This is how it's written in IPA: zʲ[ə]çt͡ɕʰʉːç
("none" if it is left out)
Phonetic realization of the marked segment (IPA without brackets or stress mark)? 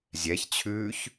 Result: ɛ